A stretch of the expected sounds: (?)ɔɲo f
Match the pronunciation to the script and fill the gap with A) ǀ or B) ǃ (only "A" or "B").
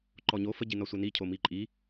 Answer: B